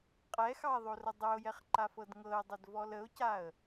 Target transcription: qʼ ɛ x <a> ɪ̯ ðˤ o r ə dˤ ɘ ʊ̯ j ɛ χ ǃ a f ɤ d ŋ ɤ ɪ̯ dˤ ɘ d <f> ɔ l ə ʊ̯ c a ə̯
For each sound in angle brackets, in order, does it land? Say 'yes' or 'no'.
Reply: no, no

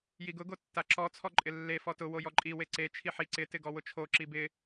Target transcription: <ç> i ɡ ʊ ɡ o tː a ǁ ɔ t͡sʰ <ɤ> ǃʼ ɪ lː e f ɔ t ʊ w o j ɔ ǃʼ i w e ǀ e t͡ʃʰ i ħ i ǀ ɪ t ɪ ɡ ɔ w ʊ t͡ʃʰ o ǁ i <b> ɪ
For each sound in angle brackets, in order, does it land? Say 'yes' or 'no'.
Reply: no, no, yes

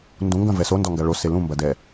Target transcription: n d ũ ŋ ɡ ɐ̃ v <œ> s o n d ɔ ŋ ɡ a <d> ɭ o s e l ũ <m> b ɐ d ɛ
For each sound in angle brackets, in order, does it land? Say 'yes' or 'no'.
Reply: no, no, yes

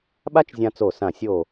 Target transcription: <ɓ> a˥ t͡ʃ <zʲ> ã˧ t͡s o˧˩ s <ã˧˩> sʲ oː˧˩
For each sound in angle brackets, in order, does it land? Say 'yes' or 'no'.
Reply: yes, yes, yes

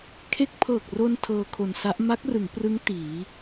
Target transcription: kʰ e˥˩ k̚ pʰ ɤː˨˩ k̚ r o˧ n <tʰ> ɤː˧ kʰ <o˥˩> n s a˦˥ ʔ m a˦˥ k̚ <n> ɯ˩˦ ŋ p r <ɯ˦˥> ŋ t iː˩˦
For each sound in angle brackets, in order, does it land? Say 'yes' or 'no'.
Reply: yes, no, no, yes

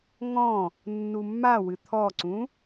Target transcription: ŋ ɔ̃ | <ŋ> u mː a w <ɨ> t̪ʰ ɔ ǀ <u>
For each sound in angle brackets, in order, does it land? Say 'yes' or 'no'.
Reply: no, yes, no

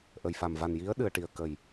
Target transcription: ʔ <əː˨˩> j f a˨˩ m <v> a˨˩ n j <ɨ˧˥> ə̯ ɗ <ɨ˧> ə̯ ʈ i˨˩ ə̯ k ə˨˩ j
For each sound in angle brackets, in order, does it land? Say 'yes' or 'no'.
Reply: no, yes, no, yes

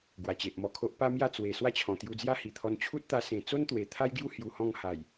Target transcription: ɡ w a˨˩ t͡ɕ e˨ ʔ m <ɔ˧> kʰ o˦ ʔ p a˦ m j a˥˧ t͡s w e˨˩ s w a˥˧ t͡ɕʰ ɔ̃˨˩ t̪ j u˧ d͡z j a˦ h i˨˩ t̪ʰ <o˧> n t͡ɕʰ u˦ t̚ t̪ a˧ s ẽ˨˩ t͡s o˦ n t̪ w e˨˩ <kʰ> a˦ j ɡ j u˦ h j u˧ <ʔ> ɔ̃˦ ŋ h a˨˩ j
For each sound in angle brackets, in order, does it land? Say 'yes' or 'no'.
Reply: yes, no, no, no

